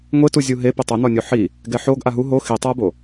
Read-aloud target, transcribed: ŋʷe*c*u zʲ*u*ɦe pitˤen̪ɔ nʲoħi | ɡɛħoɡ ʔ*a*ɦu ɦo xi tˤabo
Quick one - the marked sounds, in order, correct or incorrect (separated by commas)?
incorrect, correct, correct